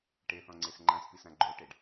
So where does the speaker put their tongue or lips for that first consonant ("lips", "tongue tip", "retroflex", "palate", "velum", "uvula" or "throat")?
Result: retroflex